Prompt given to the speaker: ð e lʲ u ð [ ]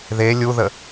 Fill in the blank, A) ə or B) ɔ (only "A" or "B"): A